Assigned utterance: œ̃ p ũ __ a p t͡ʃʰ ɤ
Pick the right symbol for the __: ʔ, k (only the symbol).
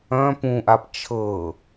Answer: ʔ